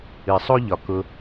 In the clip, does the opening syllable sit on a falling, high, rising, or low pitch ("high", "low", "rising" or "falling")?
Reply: low